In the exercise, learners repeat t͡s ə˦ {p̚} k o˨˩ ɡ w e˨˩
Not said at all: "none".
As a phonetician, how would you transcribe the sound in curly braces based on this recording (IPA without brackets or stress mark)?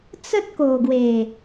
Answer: t̚